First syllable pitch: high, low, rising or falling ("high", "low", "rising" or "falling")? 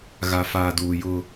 low